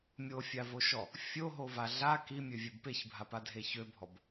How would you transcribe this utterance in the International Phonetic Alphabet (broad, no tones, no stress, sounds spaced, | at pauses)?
mʲ o fʲ a v o ʃ ɔ | fʲ o ɦ o v a ɮ a k i mʲ ø vʲ e b p e ç bʱ a p a dʱ e ç ø bʱ ɔ b